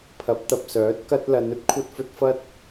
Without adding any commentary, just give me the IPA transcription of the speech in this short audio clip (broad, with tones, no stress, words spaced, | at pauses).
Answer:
pʰɐ˨˥p̚t̪ɐ˨p̚sœː˨˥t̚ kɐ˥t̚ lɐ˨˧nɵ˥t̚ kʷʰɐ˧t̚fɵ˧t̚ fɐ˥t̚